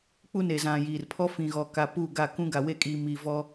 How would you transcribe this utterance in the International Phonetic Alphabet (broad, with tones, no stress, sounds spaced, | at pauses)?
k͡p u˦ n e˨ z ã˨ j iː˨ r pʰ ɔ˦ f ĩ˨ ɣ ɔ˨ k a˨ p u˦˨ ɡ a˦˨ k ũ˦ ɡ a˨ w e˦ kʼ iː˨ m i˨ v ɔ˦